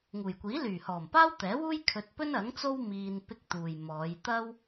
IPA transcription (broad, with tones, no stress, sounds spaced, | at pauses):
ŋ uː˨˩ j kʷ iː˨˥ l yː˨˩ h ɔː˨˩ m p aː˥ w t̪ ɛː˨˥ w uː˥ j kʰ ɵ˧ t̚ p ɵ˥ n ɐ˨˥ ŋ t͡s o˥ w m iː˧ n p ɪ˧ k̚ t̪ uː˨ j m ɔː˨˧ j t̪ ɐ˥ w